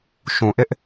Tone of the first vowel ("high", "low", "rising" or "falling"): low